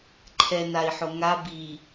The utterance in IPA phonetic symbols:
ǃʰ ɛ n a i̯ ħ o ŋ a b i

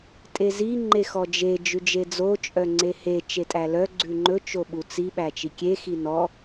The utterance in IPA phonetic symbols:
tʼ e z i ŋ͡ǃ e x ɔ d͡ʒ e d͡ʒ ʉ d͡ʒ e d͡z o t͡ʃʼ œ ŋ͡ǀ e h e t͡ʃ e tʼ æ l œ ɡ͡ǀ ʉ ŋ͡ǃ ɵ t͡ʃ o ɓ u t͡s i ɓ æ t͡ʃ i kʲ e x i n ɔ

